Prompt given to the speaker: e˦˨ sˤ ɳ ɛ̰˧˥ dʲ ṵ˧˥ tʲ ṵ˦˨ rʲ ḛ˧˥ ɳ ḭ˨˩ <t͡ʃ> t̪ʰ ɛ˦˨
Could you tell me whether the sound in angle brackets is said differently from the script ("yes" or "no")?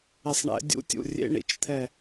no